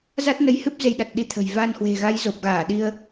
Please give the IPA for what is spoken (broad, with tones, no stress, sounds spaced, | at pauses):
z a˦˥ t̚ n ə˨˦ j h ɨ˦˥ p̚ z e˧ j ɗ a˨˩ t̚ ɗ i˧ t̪ʰ ə̤˨˩ j v a˧ n h w e̤˨˩ ɣ a˨˦ j z o˨˩ p̚ ɣ aː˧˩ ɗ i˧ ə̯